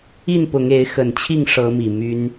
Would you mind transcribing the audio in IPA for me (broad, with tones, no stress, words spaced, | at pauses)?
i˥˨npʊ˨˦ŋe˨˦ɪ̯xə˨˩n t͡ɕʰi˥˨ŋʂɤ˨˦mi˨˩ my˦n